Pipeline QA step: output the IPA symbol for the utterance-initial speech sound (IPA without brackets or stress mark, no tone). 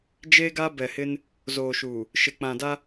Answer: d͡ʒ